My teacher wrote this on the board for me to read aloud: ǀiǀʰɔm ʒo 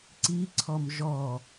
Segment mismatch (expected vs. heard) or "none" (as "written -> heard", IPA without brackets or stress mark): o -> ɔ